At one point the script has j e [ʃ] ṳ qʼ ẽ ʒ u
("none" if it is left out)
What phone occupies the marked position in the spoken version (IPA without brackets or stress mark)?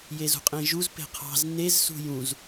z